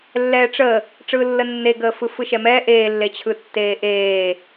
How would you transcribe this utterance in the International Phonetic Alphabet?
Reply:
lːɛːʈ͡ʂə | ʈ͡ʂɯːlːənːeɡəː fɯfɯʃɛmɛː ʔeːlːet͡ɕʰɯ tːeːʔeː

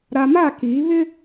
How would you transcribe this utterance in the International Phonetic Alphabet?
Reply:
ɾa˨ma˦˨kiː˨˦ βɪ˦

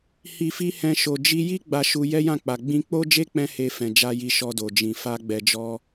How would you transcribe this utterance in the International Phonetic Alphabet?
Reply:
hi˨fi˧ hɛ̃˧ʃo˨ d͡ʒi˧ji˦ ɡ͡ba˧ʃu˧ jɛ˦jã˦˨k͡pa˨ ɡ͡bĩ˧k͡po˦d͡ʒe˦ k͡pɛ̃˦he˧fɛ̃˨d͡ʒa˧ ji˧ ʃɔ˧do˨d͡ʒĩ˨ fa˧ɡ͡bɛ˨d͡ʒɔ˧

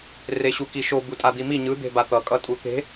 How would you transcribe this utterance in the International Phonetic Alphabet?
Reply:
reɕukiʃo butʼad̪imi ɲɯ d̪e̤bat̪ʌ kʼʌtʼut̪e̤

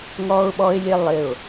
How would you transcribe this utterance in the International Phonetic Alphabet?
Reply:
ŋɔ˧ʊ̯ɓɔ˧ɪ̯lʲe˧lˠɪ˧˩ʊ̯

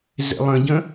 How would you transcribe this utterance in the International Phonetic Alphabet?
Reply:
zḛlˠə̃ɟə̃

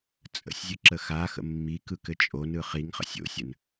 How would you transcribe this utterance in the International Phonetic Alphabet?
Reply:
t͡sʼə̰sʲzʲɯ ǁəxaxə̰ mːikɯ kɘt͡ʃʼonɯ χiŋχə̰sʲ o̰sʲən

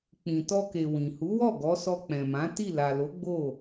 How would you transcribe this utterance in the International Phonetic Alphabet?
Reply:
k͡pĩ˨ tɔ˧ke˨ wĩ˨hu˨˦wɔ˦˨ ɡɔ˨˦ sɔ˧k͡pɛ̃˨mã˨˦ ti˦˨ la˨lo˨˦ ɡ͡bo˦˨

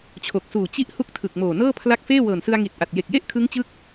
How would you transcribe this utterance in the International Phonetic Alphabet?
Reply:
t͡ɕʰo˨˩k̚suː˨˩ t͡ɕi˦˥ʔ hu˦˥k̚tʰɯ˨˩k̚moː˨˩ nɤː˥˩pʰla˦˥k̚feː˥˩ wɤː˨˩nsɯ˧a̯ŋi˨˩t̚ ʔa˨˩t̚je˨˩k̚je˥˩ʔ kʰɯ˦˥ŋt͡ɕɯ˦˥k̚

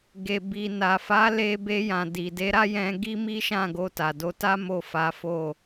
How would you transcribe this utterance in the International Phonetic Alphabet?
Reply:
ɡe˨bi˨na˨fa˨˦ le˧be˧ jã˨di˨de˨˦ ɾa˦jɛ̃˧ ɡi˦mi˦ʃã˦˨ɡo˧ ta˨do˧ta˦ mo˦˨fa˨˦fo˦˨

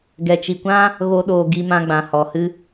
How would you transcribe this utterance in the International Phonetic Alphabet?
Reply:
ɡɛ˨t͡ʃi˨kʷã˦ | ɣo˦ɗoː˧ ɡi˧mã˧ɡ͡bã˨ hɔ˨hɨ˦

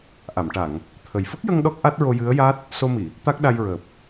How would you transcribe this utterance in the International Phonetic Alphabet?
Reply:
ʔa˨˩˨mʈa˨˩˨ŋ | t̪ʰə˨˩j fə˦˥k̚jə˧ŋ ɗɔ˦˥k̚ʔa˦˥t̚ɹo˧ jɨ˧˥ə̯ja˦˥t̚ | so˧mi˨˩˨ | t̪a˦˥k̚ɗa˧jɹəː˨˩p̚

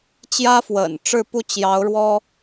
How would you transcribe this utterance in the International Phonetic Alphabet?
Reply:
t͡ɕjä˥fwə̰˨˩n ʈ͡ʂɻ̩˥˩pu˥t͡ɕjɑ˧˥ʊ̯ ɻwɔ˥

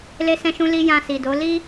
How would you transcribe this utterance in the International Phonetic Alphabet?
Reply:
le˧sɛ̃˧ʃũ˧ li˧ jã˧si˨do˨˦ li˦

